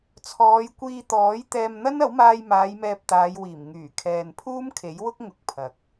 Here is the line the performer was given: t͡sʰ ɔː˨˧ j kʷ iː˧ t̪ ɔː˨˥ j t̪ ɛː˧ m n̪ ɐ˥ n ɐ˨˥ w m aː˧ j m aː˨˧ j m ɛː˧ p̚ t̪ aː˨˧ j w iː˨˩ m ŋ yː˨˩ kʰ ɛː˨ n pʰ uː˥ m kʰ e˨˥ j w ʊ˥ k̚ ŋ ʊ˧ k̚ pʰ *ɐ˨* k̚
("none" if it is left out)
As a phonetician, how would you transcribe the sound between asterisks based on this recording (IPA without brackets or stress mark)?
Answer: ɐ˨